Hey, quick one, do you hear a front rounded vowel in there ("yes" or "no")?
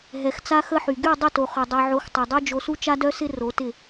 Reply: yes